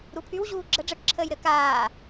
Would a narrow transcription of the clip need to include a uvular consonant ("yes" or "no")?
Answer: no